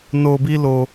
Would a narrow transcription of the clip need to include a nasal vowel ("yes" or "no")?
no